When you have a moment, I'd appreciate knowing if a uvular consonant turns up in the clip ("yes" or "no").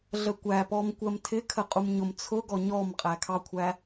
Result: yes